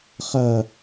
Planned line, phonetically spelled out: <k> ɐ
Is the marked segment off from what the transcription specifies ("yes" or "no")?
yes